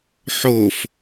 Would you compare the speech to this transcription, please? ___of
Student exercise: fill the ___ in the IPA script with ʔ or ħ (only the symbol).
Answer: ħ